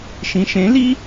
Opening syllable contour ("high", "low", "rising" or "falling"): low